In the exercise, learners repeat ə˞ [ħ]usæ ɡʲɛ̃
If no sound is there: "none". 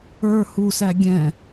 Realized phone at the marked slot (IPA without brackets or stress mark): h